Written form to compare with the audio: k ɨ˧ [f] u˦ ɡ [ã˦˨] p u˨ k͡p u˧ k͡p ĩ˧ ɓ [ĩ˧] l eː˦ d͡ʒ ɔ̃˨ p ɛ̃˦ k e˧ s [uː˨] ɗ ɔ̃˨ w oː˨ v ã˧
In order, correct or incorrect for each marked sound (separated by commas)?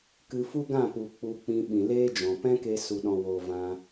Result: correct, correct, incorrect, incorrect